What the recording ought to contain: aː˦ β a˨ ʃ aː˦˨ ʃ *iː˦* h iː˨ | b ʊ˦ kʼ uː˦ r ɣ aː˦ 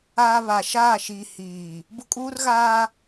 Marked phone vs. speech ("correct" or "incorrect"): incorrect